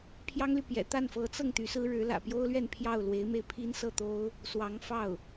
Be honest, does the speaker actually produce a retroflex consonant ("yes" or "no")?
yes